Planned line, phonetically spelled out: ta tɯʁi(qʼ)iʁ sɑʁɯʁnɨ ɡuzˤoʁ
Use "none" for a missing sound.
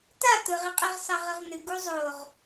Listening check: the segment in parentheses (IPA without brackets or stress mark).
qʼ